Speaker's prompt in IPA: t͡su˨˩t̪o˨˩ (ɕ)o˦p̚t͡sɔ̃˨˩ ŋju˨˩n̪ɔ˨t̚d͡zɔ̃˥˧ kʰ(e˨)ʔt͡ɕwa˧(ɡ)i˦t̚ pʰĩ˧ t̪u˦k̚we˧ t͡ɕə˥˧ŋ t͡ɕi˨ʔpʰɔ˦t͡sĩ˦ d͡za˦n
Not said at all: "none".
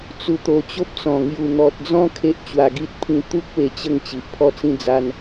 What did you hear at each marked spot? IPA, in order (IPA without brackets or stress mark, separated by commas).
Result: t͡ɕ, e˦, ɡ